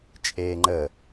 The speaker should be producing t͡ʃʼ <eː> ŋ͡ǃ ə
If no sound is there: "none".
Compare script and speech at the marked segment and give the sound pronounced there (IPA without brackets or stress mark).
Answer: eː